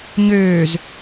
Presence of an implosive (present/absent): absent